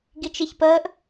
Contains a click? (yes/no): no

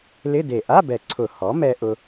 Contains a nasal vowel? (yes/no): no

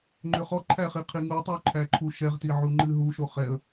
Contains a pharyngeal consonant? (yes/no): yes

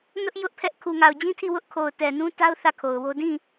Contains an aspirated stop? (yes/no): yes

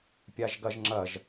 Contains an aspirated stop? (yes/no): no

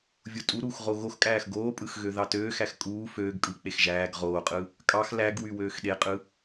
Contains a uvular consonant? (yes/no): yes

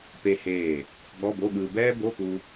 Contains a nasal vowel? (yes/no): no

